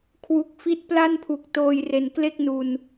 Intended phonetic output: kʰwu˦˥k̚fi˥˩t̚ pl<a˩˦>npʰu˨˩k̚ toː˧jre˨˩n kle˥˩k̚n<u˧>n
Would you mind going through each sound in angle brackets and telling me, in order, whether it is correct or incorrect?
incorrect: a˥˩, correct

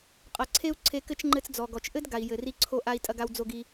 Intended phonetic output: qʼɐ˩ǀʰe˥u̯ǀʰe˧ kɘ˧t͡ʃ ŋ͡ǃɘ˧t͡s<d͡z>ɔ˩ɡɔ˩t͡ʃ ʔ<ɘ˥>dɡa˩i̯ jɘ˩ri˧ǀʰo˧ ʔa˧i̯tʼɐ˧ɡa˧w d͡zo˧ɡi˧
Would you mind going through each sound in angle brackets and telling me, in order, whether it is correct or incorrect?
correct, correct

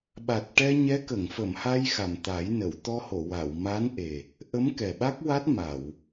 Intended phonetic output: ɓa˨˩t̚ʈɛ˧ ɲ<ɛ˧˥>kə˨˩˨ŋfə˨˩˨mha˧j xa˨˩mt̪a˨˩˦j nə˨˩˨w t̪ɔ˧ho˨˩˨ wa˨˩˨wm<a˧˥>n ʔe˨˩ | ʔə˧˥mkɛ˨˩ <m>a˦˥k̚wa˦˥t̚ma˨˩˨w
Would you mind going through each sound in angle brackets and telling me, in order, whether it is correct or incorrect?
correct, correct, incorrect: ɓ

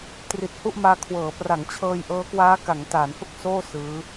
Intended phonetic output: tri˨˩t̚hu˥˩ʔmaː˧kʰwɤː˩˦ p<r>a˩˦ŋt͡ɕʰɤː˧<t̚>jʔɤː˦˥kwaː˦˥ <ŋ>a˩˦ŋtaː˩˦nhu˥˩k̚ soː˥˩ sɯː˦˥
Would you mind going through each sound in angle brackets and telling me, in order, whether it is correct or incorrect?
correct, incorrect: none, incorrect: k

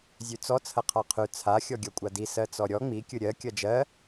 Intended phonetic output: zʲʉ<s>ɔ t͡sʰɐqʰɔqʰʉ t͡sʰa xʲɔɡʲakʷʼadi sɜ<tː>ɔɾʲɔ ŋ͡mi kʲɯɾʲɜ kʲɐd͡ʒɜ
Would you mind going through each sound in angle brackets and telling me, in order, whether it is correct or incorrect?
incorrect: t͡s, incorrect: t͡s

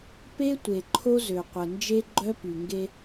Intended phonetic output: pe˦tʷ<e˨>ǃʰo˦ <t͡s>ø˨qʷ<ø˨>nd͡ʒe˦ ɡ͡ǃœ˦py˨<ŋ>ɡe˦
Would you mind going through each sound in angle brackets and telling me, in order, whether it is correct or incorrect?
correct, incorrect: z, incorrect: ə˨, correct

